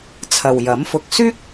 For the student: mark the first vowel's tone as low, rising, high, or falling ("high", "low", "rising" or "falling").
low